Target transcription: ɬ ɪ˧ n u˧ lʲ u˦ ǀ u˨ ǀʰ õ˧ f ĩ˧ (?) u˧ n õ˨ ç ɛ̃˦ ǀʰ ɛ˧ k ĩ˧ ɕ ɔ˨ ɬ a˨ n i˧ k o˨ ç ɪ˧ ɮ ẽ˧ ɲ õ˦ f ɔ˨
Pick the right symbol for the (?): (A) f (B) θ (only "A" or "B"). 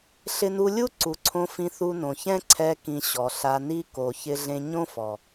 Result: B